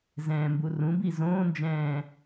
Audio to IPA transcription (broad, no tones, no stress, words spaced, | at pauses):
zɛ̃ːmburũbi zõːnd͡ʒɛ̃ː